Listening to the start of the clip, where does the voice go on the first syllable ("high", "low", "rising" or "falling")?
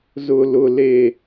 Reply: high